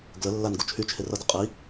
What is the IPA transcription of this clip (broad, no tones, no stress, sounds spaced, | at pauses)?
ɡ l ə lː a n ɡ u t͡ʃʰ y t͡ʃʰ e r ʌ d ə qʼ i